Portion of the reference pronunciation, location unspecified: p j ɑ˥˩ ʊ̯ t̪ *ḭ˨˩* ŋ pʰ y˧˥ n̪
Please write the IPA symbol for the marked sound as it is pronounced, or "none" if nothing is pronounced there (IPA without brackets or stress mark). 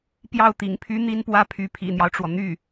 ḭ˨˩